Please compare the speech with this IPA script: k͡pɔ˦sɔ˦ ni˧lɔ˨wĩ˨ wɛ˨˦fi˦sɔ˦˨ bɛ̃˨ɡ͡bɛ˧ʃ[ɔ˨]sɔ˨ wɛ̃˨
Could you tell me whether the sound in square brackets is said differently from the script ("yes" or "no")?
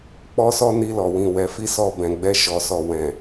no